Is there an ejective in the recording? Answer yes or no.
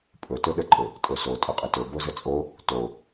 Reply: yes